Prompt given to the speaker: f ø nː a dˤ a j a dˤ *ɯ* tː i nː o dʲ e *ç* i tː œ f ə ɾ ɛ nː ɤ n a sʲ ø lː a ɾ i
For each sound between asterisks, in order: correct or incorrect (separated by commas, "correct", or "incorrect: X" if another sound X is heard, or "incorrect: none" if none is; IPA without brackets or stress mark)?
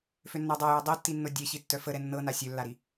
incorrect: ɤ, correct